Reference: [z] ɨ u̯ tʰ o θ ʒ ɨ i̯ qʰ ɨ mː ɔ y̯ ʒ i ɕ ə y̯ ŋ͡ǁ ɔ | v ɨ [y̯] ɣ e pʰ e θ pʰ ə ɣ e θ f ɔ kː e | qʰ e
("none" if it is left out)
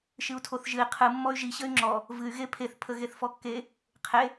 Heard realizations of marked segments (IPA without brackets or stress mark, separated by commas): ʃ, y̯